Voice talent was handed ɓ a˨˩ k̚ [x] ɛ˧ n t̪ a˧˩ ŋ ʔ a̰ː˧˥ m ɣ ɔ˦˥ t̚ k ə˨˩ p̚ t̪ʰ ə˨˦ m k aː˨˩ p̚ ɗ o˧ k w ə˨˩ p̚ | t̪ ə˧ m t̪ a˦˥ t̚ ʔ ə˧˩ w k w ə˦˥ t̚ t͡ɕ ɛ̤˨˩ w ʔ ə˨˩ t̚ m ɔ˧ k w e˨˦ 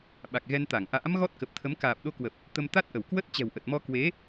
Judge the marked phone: incorrect: ɣ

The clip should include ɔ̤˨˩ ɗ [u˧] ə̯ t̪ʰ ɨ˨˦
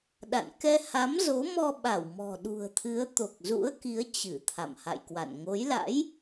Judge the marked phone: incorrect: ṳ˨˩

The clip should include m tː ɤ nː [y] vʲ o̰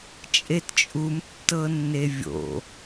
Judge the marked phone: incorrect: e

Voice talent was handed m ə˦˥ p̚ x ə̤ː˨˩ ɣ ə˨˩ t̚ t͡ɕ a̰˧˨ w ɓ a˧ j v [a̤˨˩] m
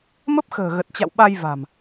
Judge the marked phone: correct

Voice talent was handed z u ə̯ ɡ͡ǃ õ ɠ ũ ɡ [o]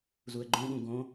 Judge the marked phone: incorrect: õ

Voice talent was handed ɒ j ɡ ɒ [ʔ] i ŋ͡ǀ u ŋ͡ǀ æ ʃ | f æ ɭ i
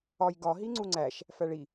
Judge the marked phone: incorrect: ɦ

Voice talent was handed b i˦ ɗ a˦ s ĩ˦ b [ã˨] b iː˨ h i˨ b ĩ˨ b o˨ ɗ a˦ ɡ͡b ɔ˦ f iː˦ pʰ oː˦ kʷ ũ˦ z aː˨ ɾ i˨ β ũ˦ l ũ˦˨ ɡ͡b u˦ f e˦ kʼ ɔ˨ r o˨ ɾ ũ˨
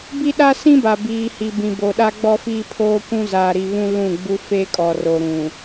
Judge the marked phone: incorrect: a˨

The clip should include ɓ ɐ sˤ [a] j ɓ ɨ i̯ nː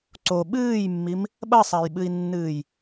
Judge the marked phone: correct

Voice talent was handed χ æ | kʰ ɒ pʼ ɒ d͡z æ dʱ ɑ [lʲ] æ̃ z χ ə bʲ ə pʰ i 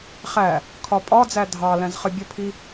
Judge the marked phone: incorrect: l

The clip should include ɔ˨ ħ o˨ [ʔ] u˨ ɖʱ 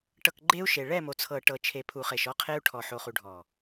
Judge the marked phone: incorrect: χ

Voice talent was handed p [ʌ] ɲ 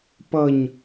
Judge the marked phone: correct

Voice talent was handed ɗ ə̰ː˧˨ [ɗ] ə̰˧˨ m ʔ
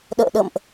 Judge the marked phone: correct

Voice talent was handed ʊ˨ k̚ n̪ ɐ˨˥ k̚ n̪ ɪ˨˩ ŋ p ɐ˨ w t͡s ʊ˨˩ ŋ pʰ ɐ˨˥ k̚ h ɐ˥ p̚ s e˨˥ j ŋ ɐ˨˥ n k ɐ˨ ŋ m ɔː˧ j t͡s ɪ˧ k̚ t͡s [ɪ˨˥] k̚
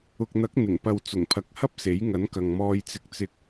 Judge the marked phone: incorrect: ɪ˧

